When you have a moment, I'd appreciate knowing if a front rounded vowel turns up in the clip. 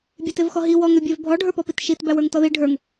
yes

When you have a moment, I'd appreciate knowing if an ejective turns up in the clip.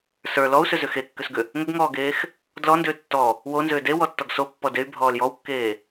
no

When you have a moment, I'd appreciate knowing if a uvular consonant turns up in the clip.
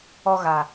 no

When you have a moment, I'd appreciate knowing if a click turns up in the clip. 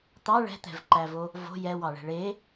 yes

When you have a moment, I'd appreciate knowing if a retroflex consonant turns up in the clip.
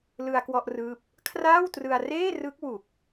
no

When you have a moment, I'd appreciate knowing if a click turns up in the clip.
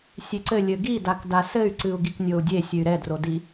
yes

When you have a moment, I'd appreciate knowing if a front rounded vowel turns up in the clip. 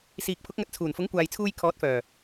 yes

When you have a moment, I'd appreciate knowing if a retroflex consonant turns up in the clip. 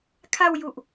no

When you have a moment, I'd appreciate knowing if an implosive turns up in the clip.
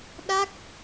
yes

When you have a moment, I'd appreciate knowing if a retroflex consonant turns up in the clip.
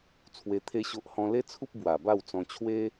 no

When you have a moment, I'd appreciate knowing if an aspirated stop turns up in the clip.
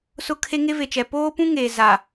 yes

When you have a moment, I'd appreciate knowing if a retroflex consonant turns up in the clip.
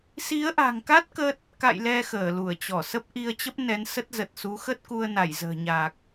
no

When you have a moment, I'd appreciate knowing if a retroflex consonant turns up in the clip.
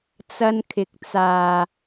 no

